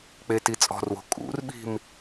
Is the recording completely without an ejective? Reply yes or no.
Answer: no